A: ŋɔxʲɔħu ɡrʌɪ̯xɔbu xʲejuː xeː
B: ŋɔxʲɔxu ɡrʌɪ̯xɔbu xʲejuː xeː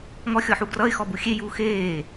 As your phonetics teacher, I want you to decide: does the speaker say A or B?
A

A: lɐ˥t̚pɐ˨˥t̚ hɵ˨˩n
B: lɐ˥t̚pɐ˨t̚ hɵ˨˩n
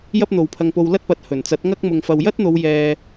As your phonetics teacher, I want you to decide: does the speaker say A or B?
A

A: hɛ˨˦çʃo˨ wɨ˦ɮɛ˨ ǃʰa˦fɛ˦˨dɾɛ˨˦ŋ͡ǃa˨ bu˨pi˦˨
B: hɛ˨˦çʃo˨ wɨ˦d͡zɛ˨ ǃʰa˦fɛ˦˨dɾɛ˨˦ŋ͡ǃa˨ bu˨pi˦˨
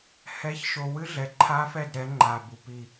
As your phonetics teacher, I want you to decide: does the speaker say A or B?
A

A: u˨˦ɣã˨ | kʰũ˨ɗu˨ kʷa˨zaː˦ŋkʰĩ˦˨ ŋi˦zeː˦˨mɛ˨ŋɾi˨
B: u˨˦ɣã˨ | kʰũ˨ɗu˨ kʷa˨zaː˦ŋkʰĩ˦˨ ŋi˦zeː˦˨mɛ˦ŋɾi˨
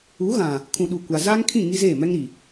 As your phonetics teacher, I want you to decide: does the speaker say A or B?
B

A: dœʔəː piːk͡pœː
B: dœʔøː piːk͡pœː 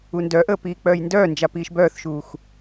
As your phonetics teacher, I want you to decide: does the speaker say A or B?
A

